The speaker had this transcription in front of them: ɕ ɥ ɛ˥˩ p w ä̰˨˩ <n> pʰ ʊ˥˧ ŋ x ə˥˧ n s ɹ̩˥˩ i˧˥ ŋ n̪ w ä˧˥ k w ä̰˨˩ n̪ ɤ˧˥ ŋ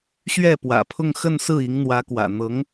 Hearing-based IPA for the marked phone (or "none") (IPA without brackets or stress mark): none